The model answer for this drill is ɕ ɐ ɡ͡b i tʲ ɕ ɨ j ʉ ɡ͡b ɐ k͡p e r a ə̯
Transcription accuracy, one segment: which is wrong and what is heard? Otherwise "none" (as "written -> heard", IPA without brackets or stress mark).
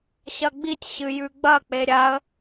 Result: r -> ɾʲ